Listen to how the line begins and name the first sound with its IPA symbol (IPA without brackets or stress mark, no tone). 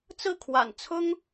t͡s